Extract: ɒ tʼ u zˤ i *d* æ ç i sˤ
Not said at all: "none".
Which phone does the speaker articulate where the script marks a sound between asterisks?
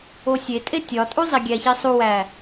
ɡʲ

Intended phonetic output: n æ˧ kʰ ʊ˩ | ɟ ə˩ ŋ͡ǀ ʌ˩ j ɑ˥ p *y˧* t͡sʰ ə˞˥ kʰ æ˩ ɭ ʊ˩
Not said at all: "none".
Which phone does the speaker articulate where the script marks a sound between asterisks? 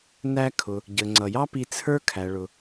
i˧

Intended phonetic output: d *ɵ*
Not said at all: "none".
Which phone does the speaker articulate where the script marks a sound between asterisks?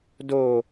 o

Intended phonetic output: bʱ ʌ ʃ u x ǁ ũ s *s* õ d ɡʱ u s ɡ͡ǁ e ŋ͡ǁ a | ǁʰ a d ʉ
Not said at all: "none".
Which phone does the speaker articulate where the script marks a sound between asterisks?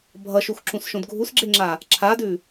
ʃ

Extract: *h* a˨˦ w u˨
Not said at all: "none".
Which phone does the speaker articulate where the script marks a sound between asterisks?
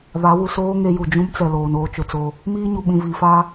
β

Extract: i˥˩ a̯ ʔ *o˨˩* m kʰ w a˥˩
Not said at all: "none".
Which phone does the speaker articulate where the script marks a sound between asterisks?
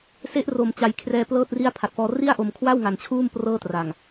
o˨˩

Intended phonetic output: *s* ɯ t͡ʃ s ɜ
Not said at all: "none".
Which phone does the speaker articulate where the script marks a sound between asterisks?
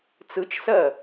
t͡s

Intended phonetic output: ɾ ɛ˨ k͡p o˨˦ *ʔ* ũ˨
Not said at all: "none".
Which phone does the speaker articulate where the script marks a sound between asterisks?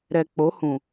h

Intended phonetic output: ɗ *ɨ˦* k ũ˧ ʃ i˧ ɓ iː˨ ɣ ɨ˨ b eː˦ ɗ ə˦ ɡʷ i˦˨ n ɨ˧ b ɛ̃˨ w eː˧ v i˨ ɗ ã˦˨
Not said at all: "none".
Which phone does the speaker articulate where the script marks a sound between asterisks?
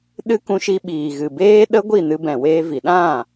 ɨ˦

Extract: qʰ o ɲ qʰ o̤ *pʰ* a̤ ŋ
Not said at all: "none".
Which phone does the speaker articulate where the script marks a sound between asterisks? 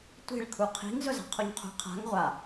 qʰ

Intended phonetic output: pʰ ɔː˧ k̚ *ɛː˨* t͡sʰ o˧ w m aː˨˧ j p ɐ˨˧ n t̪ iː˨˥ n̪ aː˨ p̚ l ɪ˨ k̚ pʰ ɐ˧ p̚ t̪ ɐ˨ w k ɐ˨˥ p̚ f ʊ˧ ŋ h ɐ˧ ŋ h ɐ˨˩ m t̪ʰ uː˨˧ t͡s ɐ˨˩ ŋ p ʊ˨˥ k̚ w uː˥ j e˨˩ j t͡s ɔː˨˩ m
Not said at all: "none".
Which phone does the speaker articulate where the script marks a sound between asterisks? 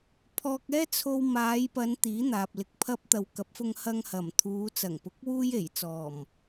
ɛː˥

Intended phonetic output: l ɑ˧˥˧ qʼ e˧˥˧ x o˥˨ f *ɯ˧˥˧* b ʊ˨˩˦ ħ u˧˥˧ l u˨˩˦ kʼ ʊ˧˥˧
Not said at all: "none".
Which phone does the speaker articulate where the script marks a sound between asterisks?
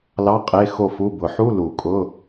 u˧˥˧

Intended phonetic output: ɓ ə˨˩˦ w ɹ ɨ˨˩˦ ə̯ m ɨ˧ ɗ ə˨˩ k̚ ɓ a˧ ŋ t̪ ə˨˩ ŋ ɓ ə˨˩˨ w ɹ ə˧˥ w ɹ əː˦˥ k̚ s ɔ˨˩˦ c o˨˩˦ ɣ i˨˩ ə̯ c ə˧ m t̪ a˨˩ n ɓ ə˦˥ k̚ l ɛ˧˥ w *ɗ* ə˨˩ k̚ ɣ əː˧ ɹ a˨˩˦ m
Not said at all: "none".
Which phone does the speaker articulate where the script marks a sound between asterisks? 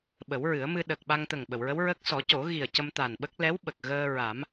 ɓ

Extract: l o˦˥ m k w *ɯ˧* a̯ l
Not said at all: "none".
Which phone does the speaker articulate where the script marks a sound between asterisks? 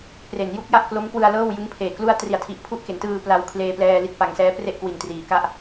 ɯ˧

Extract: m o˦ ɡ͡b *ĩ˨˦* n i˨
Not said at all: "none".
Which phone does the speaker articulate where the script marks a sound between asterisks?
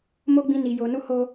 ĩ˧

